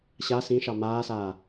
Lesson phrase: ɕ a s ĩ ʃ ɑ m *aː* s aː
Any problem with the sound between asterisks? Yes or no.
no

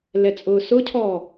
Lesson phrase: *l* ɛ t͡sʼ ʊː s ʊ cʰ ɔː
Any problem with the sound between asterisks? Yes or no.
no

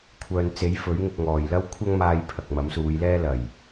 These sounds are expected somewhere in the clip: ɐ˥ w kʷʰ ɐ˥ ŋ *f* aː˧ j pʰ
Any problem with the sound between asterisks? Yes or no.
yes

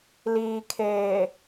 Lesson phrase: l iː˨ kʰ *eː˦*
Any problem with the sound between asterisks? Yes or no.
yes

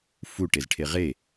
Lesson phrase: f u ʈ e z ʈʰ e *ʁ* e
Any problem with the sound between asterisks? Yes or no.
no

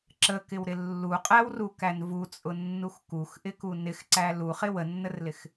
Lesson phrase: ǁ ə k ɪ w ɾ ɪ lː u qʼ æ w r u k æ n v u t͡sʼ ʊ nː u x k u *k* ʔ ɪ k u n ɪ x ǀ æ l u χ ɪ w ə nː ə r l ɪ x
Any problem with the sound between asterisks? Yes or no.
yes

